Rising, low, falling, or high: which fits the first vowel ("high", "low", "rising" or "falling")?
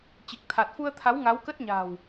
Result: low